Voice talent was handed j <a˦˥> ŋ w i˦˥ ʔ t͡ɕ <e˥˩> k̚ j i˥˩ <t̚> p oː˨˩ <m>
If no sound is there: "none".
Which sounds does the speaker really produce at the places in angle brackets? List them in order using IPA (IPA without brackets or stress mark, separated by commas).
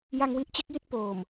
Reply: a˧, e˦˥, t̚, m